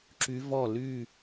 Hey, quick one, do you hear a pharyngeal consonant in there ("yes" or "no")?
no